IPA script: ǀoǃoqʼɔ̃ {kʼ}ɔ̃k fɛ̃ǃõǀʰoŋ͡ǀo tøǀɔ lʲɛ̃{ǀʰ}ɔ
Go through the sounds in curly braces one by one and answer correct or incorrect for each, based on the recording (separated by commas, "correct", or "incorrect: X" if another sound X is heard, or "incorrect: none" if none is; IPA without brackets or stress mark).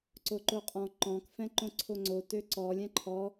incorrect: ǃ, incorrect: ǃʰ